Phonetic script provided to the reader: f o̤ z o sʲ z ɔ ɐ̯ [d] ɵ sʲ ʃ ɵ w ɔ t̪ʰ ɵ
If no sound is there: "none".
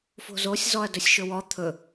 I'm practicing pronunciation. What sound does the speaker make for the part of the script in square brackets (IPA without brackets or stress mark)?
d